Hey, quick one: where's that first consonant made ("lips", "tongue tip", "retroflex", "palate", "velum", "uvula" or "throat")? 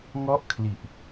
velum